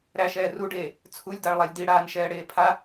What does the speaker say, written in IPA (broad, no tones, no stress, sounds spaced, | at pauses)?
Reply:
ɾ æ ʃ ɛː r u ɖ eː | t͡sʰ u lʲ d a ɭ lˠ a lʲ d i ɽ aː n ʃ ɛː ɽ eː pʰ a